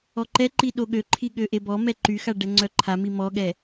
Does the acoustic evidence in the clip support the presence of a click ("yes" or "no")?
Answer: yes